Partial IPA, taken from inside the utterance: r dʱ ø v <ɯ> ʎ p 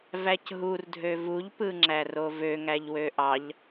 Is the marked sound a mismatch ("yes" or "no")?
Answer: yes